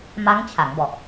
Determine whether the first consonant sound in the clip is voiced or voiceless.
voiced